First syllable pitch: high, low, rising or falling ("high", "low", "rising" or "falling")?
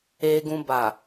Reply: low